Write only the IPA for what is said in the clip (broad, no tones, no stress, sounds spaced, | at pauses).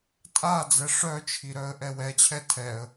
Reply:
tʼ a d͡z ɛ ʂ œ t͡ʃʰ i ɾ œ ə̯ ʔ ɛ w ɛ t͡ɕʰ ɛ tʰ ɛ ə̯